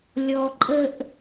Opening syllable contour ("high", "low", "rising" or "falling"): low